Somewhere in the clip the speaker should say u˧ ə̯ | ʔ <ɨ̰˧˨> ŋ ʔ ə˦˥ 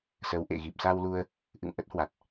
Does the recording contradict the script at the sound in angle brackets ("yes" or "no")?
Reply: no